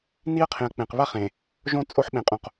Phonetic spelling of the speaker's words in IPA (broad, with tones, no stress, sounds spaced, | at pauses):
n i˦ ɐ̯ qʰ ẽ˨ ɐ̯ k͡p ẽ˨ q β a˦ χ ẽ˨ | ʒ õ˦ t͡sʼ o˦ ħ ɓ ẽ˨ qʼ õ˨ q